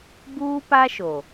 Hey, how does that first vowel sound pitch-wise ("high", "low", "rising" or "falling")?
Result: high